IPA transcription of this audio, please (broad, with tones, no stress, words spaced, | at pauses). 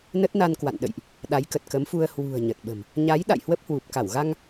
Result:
nə˦˥t̚ na˧nkwa̰˧˨nɗə̰˧˨jʔ | ɗa˨˦jkə˨˩t̚kə˨˦mfu˧ə̯ hwṳ˨˩ə̯ ɲə˨˩t̚ɓə̤˨˩m | ɲa˨˦j ɗa̰˧˨jhwə˦˥p̚hwu˨˩p̚ka˧˩w ɣa˧ŋ